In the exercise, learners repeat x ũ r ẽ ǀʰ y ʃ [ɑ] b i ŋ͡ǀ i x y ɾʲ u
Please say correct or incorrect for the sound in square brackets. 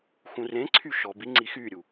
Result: incorrect